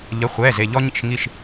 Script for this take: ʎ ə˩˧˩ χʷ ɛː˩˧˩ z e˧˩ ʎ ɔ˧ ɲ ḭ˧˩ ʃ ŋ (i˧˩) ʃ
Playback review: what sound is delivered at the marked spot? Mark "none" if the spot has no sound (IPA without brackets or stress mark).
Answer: i˧˩